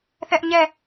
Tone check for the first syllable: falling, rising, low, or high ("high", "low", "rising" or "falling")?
high